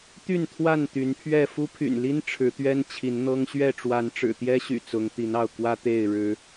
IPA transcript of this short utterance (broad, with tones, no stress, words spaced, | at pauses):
t̪y˥˨nt̪ʰwa˥˨n t̪y˨˦npʰɥɛ˥˨ fu˦pʰy̰˨˩nli˦n ʈ͡ʂʰɻ̩˨˦t̪ɥɛ˦n t͡ɕʰi˨˦nn̪ɤ˦ŋ ɕɥɛ˥˨ ʈ͡ʂwa˨˦nʈ͡ʂɻ̩˨˩t̪jɛ˦ɕy̰˨˩ t͡sʊ˨˦ŋt̪i˨˦nɑ˥˨ʊ̯ kwä˦ t̪e˥˨ɪ̯ ɻɻ̩˨˦